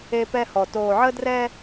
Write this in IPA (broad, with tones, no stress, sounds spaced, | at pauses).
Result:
e˦ p ɛ˦ h ɔ˨ t oː˨ ʕ ə˦ d r ɛ˦